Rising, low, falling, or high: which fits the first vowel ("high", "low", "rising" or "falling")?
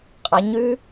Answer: rising